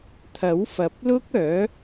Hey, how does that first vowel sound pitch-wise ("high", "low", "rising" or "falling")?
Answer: rising